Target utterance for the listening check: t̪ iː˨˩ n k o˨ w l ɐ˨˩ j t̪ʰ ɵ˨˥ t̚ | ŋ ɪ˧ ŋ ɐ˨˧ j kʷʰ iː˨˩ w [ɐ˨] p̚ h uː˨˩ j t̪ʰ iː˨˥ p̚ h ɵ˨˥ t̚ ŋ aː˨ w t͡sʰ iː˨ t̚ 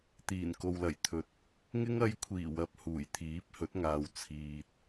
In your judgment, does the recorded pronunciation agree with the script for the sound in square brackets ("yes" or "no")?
yes